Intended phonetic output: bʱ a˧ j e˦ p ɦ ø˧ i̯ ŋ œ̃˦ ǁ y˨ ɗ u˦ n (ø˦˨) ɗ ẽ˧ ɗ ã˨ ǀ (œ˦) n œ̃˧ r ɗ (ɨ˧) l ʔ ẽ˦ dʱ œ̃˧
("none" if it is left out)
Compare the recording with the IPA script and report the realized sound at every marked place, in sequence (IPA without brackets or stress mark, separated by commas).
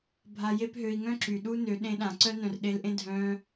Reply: ø˨˦, œ˦, e˧